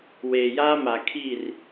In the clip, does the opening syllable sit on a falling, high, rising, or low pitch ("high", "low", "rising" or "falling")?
low